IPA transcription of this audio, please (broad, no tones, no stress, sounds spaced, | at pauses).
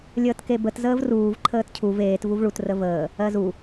lʲ əː t k e b ə t z əː v r uː v ǃʰ əː t cʰ u v eː t v u v ɭ u t r ə v əː | ɜ z u